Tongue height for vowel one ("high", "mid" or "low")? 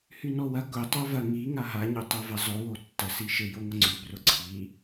high